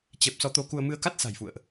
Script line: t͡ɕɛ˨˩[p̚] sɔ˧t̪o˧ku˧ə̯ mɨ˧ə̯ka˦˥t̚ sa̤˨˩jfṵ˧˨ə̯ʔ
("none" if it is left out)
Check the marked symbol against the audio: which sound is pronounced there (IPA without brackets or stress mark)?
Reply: p̚